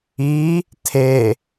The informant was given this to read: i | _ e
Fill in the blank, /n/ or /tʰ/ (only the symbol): tʰ